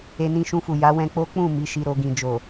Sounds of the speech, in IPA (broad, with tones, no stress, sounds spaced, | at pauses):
e˧ n ĩ˧ ʃ ũ˧ f u˨ j a˨˦ w ɛ̃˧ k͡p o˦ k͡p ũ˦˨ m i˨˦ ʃ i˧ ɾ o˧ ɡ ĩ˨ d͡ʒ o˨